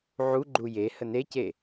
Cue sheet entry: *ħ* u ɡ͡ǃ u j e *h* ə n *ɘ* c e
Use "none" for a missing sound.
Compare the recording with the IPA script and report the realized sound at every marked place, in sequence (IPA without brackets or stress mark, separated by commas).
ʕ, h, e